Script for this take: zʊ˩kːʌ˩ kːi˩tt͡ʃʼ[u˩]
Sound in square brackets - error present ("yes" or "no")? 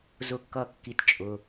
yes